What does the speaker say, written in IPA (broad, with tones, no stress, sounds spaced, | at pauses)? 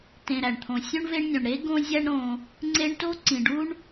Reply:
t ẽ˨ ɾ æ˩ ɳ t̪ʰ õ˨ sʲ õ˥ ɳ v e˦ ɳ nʲ õ˩ ɳ ɾ e˥ ɡ õ˥ zʲ æ˥ ɳ ɾ õ˨ | ŋ͡ǀ e˦ ɳ t o˥ ǀ ĩ˩ ɖ u˦ ɳ